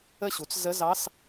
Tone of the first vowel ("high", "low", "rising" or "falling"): falling